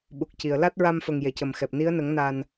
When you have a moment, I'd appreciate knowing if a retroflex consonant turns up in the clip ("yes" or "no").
no